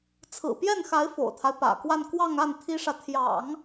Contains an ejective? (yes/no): no